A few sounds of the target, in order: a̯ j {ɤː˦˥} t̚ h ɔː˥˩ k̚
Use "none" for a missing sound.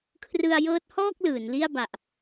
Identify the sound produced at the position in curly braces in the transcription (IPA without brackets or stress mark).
ɤː˦˥